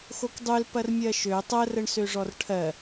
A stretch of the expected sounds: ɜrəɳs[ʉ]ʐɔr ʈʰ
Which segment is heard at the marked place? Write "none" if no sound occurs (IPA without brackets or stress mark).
ø